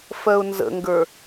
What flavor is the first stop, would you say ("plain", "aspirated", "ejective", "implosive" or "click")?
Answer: plain